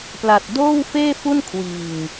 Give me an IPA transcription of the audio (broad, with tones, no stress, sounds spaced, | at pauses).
p l a˨˩ t̚ d oː˥˩ w f eː˥˩ f u˥˩ n kʰ w iː˨˩ ŋ